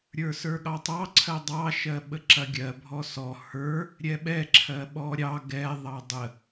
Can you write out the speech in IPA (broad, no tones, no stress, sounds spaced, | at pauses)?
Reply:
ɾʲ ə˞ s ə˞ ɠ ɑ tˤ ɑ ǀʰ ɜ dˤ ɑ ʃ ɜ ɓ ə ǁ ɐ ɡʲ ɜ bʱ ɔ s ɔ h ə˞ | ɾʲ ɛ ɓ ɛ ǁʰ ɜ ɓ ɔ ɾʲ ɑ ɡ ɛ ðˤ ɑ dˤ ə